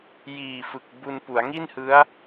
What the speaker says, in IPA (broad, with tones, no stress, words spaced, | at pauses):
jiː˨˩fɯ˨˩k̚ bu˧npu˩˦a̯ ŋi˥˩nhɯ˦˥a̯